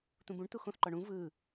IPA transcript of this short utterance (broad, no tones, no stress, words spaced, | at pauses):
t̪ũbũɳ t̪uxõθǃɔ ɳũ vɯ